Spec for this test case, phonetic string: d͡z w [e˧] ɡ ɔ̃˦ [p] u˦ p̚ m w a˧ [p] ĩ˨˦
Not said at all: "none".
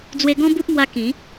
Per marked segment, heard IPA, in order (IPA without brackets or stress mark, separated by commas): e˧, b, k